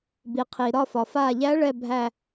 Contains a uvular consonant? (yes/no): yes